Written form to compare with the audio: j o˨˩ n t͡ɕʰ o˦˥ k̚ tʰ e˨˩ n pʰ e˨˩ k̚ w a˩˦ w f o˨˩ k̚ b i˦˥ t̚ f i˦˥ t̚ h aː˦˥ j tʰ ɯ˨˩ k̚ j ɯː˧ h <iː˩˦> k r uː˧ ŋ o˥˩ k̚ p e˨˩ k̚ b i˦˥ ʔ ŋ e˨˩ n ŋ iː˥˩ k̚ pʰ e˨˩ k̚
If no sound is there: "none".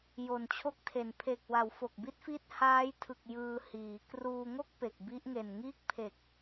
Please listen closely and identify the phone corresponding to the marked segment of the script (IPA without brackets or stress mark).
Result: iː˩˦